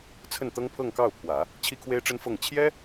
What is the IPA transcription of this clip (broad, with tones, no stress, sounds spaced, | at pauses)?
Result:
t͡sʰ ə˥˩ n t̪ ɤ˥ ŋ pʰ ɤ˥˧ ŋ k ɑ˥˩ ʊ̯ pʰ w ä˨˩˦ | t͡ɕʰ i˥ kʰ w e˥ ɪ̯ ʈ͡ʂ ə˥ n f ɤ˥˩ ŋ t͡ɕʰ j ɛ˥